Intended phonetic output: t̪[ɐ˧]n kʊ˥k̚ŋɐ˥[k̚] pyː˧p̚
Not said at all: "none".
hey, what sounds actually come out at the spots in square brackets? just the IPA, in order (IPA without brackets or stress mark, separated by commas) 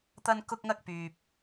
ɐ˥, k̚